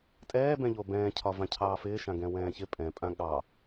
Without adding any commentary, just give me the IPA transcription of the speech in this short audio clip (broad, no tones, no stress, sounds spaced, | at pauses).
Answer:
tʼ ɛː b ɛ̃ ʎ o b ɛ̃ː cʰ ɒ v ã cʰ ɑː f ɪː ʃ ã ɡ ɛ̃ w ɛ̃ː ç ɪ pʼ ɛ̃ pʼ ã ɠ ɑ